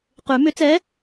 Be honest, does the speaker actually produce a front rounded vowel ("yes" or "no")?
yes